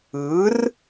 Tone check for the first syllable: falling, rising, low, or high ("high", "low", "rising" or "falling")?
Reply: rising